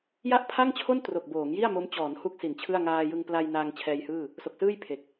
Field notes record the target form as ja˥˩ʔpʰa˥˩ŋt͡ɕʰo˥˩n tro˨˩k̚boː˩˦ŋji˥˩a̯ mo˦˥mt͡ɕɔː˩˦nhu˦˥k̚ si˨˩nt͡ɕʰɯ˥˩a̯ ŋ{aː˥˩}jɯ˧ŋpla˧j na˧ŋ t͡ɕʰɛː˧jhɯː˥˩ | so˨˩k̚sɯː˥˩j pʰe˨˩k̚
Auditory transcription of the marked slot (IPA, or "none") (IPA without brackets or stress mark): aː˧